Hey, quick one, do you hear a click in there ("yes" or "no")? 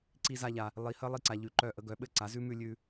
yes